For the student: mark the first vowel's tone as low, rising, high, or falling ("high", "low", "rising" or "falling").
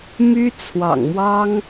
high